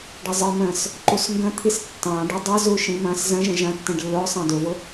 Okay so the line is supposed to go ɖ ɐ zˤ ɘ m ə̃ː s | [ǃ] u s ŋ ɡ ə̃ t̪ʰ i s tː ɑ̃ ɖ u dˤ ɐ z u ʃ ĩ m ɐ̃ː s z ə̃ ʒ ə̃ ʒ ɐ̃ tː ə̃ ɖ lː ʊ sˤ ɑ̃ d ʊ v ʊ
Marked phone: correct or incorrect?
correct